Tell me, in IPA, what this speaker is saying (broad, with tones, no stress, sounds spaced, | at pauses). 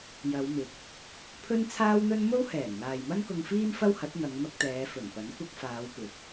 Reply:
j ɐ˨˧ w m ɪ˨˥ k̚ | pʰ ɵ˥ n t͡sʰ aː˥ w n̪ ɵ˥ n m o˥ w h ɛː˨˩ n n̪ aː˨ j m ɐ˥ n k ʊ˧ ŋ f iː˥ m f ɐ˥ w h ɐ˨˥ t̚ n̪ ɐ˨˧ ŋ m ɐ˧ k̚ t̪ ɛː˨˧ f ɵ˨˩ n p ɐ˨˥ n kʷ ɐ˧ k̚ f aː˨˧ w p ɪ˨˥ k̚